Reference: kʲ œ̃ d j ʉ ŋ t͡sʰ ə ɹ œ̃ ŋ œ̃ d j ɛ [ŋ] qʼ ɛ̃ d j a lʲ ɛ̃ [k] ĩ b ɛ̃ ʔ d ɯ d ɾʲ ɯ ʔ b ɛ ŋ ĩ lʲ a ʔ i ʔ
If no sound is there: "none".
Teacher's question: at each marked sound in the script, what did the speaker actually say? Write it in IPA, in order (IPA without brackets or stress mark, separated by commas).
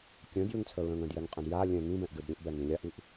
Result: ŋ, ŋ